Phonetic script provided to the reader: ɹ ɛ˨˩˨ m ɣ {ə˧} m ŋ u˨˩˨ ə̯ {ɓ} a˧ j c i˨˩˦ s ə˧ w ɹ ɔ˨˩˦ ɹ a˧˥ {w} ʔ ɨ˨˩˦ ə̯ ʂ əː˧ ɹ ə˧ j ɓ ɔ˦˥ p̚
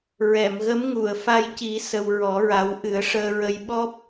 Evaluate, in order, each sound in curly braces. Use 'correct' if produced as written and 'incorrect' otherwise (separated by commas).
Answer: incorrect, incorrect, correct